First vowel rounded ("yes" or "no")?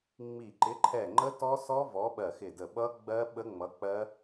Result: no